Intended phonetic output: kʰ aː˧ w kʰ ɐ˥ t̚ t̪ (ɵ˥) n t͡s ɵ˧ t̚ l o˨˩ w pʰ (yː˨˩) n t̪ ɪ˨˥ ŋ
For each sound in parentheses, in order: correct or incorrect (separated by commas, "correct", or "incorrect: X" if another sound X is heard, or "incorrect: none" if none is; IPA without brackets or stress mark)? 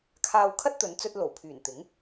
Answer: incorrect: ɵ˨˧, correct